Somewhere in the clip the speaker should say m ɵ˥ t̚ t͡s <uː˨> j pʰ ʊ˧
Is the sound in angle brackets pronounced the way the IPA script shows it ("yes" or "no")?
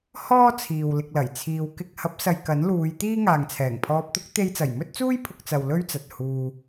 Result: no